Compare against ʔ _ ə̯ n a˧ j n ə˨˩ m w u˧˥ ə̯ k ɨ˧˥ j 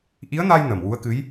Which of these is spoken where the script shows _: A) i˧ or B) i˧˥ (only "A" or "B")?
B